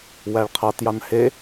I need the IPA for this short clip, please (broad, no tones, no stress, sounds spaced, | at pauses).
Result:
w æ ɭ qʰ ɑ t j ɑ n h e